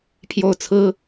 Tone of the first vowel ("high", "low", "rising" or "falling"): falling